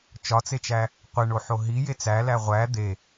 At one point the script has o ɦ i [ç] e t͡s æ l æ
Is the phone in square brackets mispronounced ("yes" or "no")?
yes